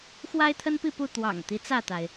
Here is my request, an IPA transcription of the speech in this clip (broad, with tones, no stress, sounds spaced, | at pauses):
x w a˦ ɪ̯ t̪ʰ ə˦ n p i˥˨ p u˥˨ t̪ w ɑ̰˨˩ ŋ t̪ i˦ t͡s ä˥˨ t̪ a˩ ɪ̯